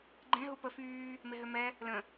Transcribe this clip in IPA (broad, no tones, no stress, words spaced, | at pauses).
ɡ͡ǃẽ ɦupə fyː | meɦømɛ | lə̃